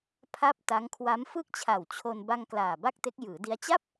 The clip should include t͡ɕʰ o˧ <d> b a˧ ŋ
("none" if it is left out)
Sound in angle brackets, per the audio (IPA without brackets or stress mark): n